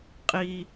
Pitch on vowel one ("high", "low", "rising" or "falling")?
low